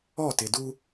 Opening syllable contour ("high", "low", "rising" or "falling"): falling